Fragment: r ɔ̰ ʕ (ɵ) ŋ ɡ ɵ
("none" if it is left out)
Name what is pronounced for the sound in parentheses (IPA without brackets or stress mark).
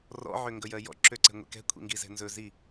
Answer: ø